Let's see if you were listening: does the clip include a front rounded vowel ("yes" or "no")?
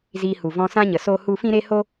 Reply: no